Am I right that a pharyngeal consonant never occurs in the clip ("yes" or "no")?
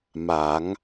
yes